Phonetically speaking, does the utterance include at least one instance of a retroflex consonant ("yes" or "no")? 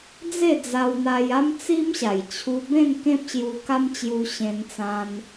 no